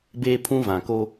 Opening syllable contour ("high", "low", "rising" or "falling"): high